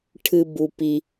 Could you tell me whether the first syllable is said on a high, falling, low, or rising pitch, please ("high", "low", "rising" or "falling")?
high